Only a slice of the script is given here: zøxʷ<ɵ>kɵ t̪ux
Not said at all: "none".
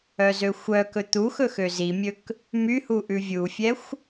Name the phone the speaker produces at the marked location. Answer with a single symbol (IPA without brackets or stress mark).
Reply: œ